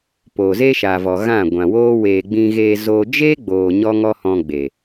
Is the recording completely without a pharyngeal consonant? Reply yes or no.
yes